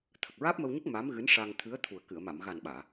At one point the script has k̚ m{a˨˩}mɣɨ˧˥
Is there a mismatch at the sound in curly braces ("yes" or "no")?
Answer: yes